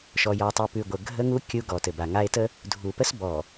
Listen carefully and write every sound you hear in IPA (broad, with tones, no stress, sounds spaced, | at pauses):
ʃ ɔ˨ j ɔ˨ tˤ ʉ˨ p ʉ˨ ɡʷ ə˨ ɡʱ ə˦ ŋ u˦ kʲ u˦ ɡ ɔ˨ t ɘ˨ b a˨ ŋ a˦ e̯ t ə˦ | dʱ u˨ p ə˦ s b ɔ˨